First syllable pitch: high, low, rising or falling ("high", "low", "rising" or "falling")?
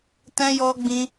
high